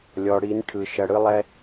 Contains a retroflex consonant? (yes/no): yes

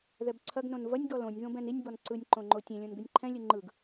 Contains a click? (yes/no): yes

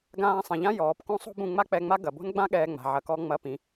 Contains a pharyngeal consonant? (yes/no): yes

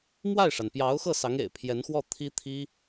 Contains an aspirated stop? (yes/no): yes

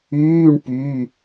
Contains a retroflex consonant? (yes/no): yes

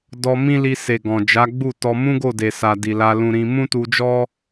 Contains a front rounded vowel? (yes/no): no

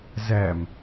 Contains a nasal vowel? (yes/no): no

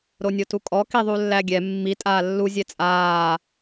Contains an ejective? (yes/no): yes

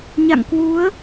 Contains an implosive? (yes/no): no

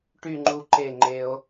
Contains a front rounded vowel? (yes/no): yes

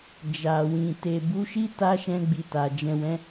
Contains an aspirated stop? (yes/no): no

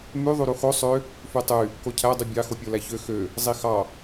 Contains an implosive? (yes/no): no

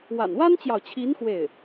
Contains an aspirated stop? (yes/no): yes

